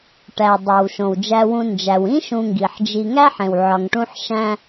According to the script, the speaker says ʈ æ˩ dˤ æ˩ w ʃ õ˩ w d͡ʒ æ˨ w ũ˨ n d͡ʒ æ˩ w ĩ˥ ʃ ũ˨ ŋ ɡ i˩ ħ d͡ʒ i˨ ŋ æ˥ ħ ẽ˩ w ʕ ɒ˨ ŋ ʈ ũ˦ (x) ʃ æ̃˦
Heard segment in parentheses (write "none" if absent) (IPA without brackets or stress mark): ħ